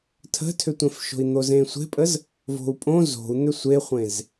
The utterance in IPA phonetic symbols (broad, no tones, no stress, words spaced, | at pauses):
tʰə̤tʰʏtʷẽfʃo̤i̯ n̪ozẽsʷe̤pʼəz | vo̤u̯pʼõ zo̤u̯ n̪ʏsʷeχʷẽz